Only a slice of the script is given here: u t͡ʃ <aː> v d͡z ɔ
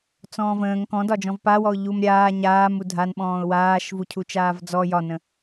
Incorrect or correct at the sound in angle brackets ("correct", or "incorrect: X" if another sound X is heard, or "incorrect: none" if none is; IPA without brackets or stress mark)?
correct